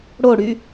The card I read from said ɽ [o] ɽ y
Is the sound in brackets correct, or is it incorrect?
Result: correct